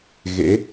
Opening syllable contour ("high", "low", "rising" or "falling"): rising